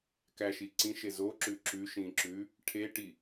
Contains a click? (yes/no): yes